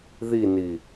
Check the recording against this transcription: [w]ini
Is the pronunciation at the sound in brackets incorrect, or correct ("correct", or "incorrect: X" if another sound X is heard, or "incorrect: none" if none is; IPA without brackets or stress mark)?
incorrect: ð